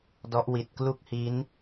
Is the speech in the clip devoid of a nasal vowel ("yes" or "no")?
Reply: yes